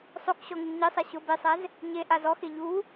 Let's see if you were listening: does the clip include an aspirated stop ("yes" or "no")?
no